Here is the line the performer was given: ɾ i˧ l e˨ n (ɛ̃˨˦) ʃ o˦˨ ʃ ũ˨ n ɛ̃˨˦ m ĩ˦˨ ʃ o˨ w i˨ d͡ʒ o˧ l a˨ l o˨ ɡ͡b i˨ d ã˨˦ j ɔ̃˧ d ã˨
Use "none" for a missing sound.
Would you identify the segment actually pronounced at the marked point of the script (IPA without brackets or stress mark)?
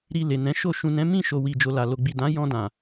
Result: ɛ̃˨˦